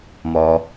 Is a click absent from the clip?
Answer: yes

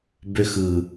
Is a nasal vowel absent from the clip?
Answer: yes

